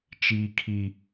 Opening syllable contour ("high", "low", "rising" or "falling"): low